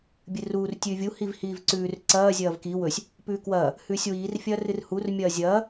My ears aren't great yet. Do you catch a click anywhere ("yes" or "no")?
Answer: yes